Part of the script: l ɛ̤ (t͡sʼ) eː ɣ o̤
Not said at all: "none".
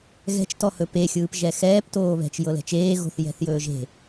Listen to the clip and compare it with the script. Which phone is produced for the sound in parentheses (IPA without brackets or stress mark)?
t͡ʃ